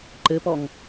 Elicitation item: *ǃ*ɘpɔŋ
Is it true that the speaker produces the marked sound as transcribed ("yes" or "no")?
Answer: yes